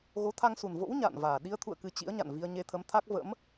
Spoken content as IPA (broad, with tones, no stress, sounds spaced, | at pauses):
ɣ o˨˦ t̪ʰ a˧ ŋ s u˨˩ n v o̰˧˥ w ɲ a̰ː˧˨ n v aː˨˩ ɗ i˧ ə̯ t̪ʰ ṵ˧˨ ə̯ k ɨ˨˩ t͡ɕ ḭ˧˥ ə̯ ɲ a̰˧˨ n v i˧ ə̯ ɲ e˧ t̪ʰ ə˨˦ m t̪ʰ a˦˥ k̚ v ə̰˧˥ m